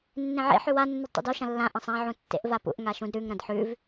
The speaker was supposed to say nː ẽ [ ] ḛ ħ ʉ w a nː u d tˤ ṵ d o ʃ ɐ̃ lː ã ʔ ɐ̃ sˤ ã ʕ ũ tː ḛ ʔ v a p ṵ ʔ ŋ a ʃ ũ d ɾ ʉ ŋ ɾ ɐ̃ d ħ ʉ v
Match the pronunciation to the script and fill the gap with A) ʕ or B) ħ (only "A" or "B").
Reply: A